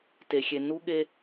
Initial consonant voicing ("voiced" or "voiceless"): voiceless